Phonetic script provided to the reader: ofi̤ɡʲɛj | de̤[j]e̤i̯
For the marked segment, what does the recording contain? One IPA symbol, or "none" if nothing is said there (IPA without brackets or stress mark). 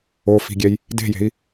j